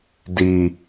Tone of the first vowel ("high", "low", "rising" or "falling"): low